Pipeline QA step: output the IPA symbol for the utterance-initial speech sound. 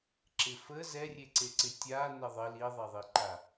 ǁ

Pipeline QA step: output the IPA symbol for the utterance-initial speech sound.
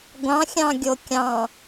ɡʷ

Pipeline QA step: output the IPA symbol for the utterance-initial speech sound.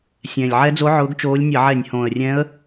sʲ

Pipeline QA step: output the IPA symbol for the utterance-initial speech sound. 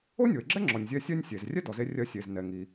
o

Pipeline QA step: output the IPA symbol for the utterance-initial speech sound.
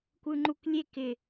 kʷ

